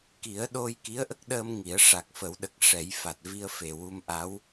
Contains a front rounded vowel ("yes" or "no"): no